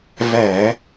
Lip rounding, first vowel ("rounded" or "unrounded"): unrounded